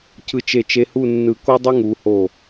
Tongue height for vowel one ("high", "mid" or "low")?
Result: high